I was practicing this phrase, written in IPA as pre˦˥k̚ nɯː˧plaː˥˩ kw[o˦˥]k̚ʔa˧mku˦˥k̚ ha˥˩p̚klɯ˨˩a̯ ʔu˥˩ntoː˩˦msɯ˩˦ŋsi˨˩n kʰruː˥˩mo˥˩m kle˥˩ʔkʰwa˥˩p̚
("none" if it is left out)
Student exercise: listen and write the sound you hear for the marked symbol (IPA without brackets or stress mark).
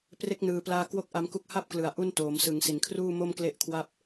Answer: o˥˩